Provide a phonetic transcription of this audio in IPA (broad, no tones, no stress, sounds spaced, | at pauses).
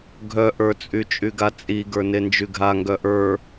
ɡʱ œ ʔ ə˞ t͡sʼ y t͡ʃʼ y ɡ a t͡sʼ i ɡ ə˞ n e n d͡ʒ y ɡʱ a ŋ ɡ œ ʔ ə˞